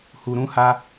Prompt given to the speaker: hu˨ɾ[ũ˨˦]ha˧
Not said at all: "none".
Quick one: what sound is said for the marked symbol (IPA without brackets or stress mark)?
ũ˨˦